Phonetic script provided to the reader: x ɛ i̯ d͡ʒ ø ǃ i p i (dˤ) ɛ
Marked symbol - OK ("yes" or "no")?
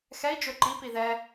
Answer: no